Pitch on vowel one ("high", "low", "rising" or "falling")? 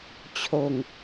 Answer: low